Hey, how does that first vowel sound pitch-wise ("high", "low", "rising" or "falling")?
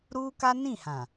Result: high